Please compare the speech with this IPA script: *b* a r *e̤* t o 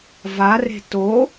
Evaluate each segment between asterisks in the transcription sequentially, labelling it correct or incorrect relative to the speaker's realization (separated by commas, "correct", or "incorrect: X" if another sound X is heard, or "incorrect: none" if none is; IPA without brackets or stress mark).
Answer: incorrect: v, correct